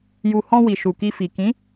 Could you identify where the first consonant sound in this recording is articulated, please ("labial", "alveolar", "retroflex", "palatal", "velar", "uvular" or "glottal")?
palatal